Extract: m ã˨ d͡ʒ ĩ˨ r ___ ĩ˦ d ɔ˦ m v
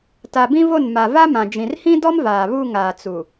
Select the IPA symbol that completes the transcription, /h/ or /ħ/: h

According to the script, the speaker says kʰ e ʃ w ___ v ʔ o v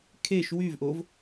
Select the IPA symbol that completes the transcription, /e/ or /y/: y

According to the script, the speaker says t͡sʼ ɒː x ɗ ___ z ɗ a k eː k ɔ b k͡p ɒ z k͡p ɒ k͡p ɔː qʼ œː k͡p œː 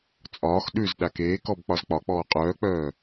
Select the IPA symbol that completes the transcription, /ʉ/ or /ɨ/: ʉ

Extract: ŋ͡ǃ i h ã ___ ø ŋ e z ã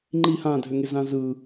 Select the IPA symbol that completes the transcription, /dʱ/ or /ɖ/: dʱ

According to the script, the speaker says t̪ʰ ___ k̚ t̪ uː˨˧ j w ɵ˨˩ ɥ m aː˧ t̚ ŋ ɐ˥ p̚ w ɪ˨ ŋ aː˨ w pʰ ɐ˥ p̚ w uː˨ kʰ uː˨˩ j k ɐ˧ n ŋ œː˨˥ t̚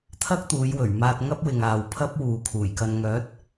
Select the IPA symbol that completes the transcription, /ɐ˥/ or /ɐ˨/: ɐ˥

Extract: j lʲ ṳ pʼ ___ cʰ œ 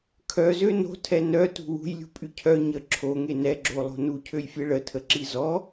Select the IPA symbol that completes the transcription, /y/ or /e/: y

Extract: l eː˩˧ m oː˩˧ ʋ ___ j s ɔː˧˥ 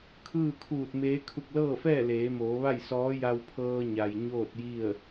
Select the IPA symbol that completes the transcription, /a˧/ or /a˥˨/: a˥˨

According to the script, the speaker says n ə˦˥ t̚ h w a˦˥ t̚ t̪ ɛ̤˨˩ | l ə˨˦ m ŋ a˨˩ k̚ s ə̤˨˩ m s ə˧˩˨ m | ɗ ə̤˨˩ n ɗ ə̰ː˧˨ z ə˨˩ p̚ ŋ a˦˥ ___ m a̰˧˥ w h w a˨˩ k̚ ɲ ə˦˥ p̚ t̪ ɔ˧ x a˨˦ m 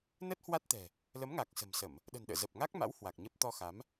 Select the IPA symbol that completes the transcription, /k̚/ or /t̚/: k̚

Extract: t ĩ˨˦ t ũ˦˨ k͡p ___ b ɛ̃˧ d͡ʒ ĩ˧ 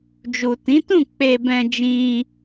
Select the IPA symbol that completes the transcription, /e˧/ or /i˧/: e˧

